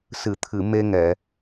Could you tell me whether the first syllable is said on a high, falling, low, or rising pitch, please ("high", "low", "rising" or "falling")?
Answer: low